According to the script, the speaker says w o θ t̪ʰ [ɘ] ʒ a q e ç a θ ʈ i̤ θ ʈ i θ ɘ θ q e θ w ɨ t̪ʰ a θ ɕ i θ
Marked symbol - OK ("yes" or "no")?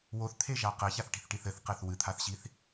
no